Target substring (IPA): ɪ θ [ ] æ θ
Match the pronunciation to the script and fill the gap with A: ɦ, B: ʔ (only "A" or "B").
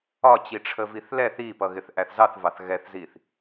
B